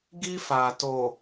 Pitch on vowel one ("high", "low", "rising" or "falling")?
high